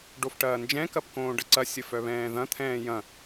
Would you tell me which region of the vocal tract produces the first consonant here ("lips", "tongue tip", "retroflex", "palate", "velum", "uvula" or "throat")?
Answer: retroflex